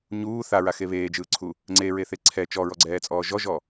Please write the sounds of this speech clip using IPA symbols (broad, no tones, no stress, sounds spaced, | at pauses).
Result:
ɲ uː θ a ɹ a x e β eː d͡ʒ ɯː ǀʰ u | ŋ͡ǀ e ɹ e θ e ǀʰ ɛ t͡ʃ ɔ ɹ ɔ ɡ͡ǀ ɛː t͡sʼ ɔː ʒ ɔ ʒ ɔ